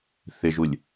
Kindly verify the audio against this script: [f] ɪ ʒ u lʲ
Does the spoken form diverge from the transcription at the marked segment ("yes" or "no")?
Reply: yes